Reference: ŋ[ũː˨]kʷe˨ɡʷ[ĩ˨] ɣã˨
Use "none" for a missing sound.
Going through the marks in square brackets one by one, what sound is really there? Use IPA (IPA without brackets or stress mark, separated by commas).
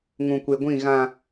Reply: ũ˨, ĩ˦˨